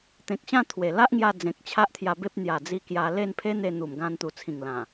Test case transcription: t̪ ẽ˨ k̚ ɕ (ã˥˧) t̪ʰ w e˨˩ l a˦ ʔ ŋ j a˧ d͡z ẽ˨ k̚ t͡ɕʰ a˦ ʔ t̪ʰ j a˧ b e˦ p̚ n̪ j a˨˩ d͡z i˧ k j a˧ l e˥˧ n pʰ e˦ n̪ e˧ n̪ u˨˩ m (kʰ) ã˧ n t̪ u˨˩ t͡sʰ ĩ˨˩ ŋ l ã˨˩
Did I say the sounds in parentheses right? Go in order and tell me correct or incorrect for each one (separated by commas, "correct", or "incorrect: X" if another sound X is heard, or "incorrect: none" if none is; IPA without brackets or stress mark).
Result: correct, incorrect: ɡ